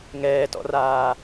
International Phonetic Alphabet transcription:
ŋɛːtɔ̰raː

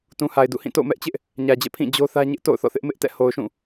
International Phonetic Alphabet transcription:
tũ˨ha˨ɪ̯dṵ˦˨hĩ˦˨ to̰˦˨ʊ̯mɛ˦ʔt͡ɕɪ˦ʔ | ɲä˨d͡ʑɛ̰˦˨pʰĩ˦˨ d͡ʑo˦θä˦ ɲɪ˦ʔto̰˦˨ʊ̯θɔ̰˦˨ θɪ˦ʔmɪ˦ʔtɛ̰˦˨ ho˨ʊ̯ʃũ˦˨

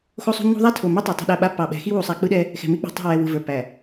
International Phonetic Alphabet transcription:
xo˦sˤṳ˦nːṳ˦ ðˤæ˦tʰo˨me˦tˤɛ˨ tˤo̤˦ɗæ˦ ɓa˦pːɑ˨ ɓɛ̤˨˦xi˦wu˨ sˤa˨k͡pɯ˦ɗɛ˦ | xɛ̤˨mi˦k͡pṳ˨ tˤɛ̤˦˨wɛ˨ wɯ˨ və˞˨pːæ˨

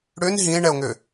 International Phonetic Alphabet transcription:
ɽʏn ɦĩe̯ɳɛo̯ŋʏ

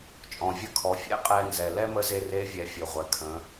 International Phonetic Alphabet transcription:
t͡ʃʼɔ̃˩vʲə˧˥kʰɔ˩˧fʲɛ̰˧˥ qʼɛ˧nzɛ˩ lɛ˥mə˧˥ze˧ re˧˥vʲɛ˩˧ fʲɵ˩ʁʷɛ˩kʰə̃˩˧

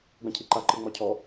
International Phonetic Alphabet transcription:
ɡ͡bɛ̃cʰiǃa ǃɯŋ͡mɒcʰɔ

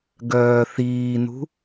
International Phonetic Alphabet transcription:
ɡœːθiːnṳ

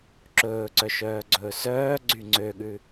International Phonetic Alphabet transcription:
ǁɵːǀœʃœːɡ͡ǀɵː sœːɡ͡ǀy ŋ͡ǀøɠʉ

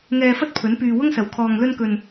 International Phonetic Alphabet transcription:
ŋɛː˧fɐ˥t̚pʰɵ˨˥n pyː˧ wʊ˥ŋsɐ˨w kʰɔː˧ŋlɵ˥nkɵ˧n

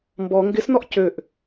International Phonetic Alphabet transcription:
mbɔ ŋɡɪsnɔʔ cøʔ

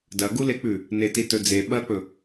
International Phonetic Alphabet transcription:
dɐɡulek͡pʉ | netitɵd͡ze ɓɐk͡pɵ

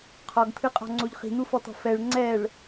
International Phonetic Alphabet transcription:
qʰɔɡtʰɨqʼɔ̤ŋ͡ǀoʎ χi̤nufɔtɔ̤ fɛɭ ŋ͡ǀɛɭ

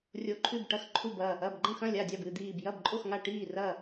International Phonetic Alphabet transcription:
rʲo˧˩ǃʰʉ˥˩bʈɐ˥˩x ǃʰu˥˩bɐ˥˩ | ɐ˧˩bɡ͡ǃɐ̃˥˩xɐ̃˥˩ lʲa˧˩dʲa˥˩b ɨ˧˩d̪iː˧˩b jɐ˥˩bǃʼo˥˩xŋa˧˩ ʈiː˥˩rɐ˥˩

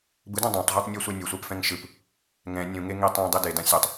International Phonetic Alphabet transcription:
bɯdã dˤɛ̃tˤʁʷetˤnʲasʷa nʲʌsʷapfɛ̃ŋ ʃɯp | ŋɛ̃ nʲũŋeŋi tˤãdˤi dedã sʲɛtˤ

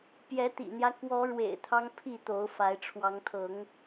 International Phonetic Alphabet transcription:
pjɛ˨˦t̪ḭ˨˩n̪jä˦ kwɔ˨˦ ɻwḛ˨˩ɪ̯t̪ʰɑ˦ŋ pʰi˥˨t̪o˨˦ʊ̯fa˨˦ɪ̯ ʈ͡ʂʰwɑ˨˦ŋt̪ʰɤ˨˦ŋ

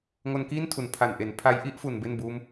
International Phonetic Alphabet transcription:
ŋo˧nkiː˥˩ntʰu˨˩n pʰa˨˩nʔe˩˦n pʰa˦˥jʔi˦˥ʔfu˨˩n be˥˩nbuː˦˥m

